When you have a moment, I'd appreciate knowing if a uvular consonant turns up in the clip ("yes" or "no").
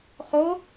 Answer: yes